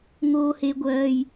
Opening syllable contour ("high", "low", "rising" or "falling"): high